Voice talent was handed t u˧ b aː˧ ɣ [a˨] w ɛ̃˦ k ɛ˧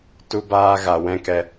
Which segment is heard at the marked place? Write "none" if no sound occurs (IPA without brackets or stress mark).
a˨